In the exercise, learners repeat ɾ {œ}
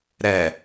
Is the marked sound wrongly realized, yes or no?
yes